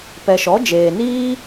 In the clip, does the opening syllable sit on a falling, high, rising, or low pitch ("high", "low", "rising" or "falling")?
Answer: low